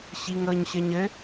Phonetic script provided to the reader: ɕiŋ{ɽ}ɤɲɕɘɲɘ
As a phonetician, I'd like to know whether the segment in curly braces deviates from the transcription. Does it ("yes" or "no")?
yes